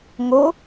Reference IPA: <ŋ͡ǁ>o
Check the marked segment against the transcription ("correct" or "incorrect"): incorrect